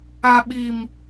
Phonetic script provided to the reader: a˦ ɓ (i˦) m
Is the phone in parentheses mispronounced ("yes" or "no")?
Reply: no